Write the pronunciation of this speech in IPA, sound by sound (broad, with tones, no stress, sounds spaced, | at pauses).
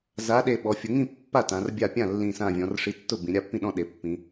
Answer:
z a˨˥ ɗ e˧˩ ɓ ɔ˩˧ fʲ ʊ˩˧ ŋ ĩ˥˩ pː a˥˩ t ã˩˧ r bʲ a˥˩ pʲ ã˥˩ lː ĩ˧˩ s ã˧˩ vʲ ɔ̃˩˧ r ʂ i˨˥ tː ʊ˥˩ b ĩ˩˧ ɾʲ a˥˩ pː ĩ˥˩ ɗ ɔ̃˥˩ ɗ e˩˧ pː ĩ˩˧